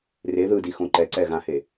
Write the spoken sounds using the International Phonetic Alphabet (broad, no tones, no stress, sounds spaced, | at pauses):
r e ð ɯ d i x õ ǃ ɛ ǀ ɛ ɣ ã h e